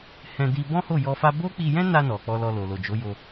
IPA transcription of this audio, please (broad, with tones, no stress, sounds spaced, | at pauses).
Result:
h ɛ̃˧ d i˧ b ɔ̃˦ h o˦˨ j ɔ˧ f a˦ b o˦ k͡p i˧ j ɛ̃˦ n a˧ n ɔ˨ k͡p ɔ˧ l ɔ˧ l o˨ l o˨ d͡ʒ o˨˦ j o˧